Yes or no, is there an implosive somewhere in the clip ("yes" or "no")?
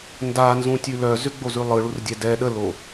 yes